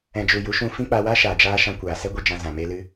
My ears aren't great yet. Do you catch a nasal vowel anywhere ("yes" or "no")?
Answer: yes